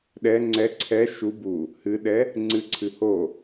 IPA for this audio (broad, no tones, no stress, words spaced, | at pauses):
ɗɛ ŋ͡ǀɛ ǀʰɛ ʃu bu | hɨɗɛ | ŋ͡ǀɨǀʰɨ ho